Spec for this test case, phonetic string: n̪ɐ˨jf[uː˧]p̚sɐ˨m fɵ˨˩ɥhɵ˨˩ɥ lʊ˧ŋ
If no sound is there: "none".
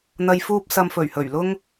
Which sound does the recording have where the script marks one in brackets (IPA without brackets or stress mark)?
uː˧